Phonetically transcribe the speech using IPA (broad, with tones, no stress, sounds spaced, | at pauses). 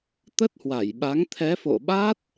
t̪ ə˦˥ t̚ h w a˧˩ j ɓ a˨˦ ŋ t̪ʰ ɛ˨˦ f o̰˧˨ ɓ a˦˥ t̚